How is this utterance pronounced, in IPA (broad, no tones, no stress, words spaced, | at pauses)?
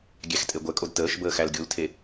ɡʲæxtʼeɡʷɛkʼod təːʃ bəːxælɡʲultʰe